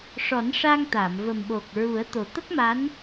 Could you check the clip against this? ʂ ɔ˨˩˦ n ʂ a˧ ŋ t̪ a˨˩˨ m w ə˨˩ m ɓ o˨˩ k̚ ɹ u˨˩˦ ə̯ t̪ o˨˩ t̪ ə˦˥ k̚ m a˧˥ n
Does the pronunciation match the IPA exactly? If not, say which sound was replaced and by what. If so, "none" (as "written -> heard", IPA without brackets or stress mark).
w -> v